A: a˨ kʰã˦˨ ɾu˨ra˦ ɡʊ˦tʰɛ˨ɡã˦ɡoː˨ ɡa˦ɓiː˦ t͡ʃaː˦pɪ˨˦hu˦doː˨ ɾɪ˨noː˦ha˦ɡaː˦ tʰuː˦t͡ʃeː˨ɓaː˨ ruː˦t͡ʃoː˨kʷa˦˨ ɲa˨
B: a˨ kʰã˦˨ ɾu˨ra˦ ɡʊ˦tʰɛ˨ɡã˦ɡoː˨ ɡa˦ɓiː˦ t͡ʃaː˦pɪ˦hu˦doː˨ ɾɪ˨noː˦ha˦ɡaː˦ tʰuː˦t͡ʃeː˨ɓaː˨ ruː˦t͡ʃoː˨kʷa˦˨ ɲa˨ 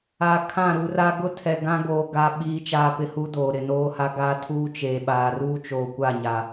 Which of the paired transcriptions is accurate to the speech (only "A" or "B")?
B